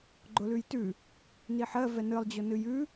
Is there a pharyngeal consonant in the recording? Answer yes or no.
yes